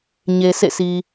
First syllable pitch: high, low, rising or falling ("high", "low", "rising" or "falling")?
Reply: low